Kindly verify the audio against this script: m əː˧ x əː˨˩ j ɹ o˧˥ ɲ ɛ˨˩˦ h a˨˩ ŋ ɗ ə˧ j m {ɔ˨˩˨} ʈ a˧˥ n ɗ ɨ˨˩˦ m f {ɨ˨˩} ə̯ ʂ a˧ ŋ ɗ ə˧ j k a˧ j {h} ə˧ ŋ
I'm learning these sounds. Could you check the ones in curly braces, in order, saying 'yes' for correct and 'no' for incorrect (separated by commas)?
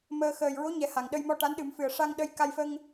no, yes, no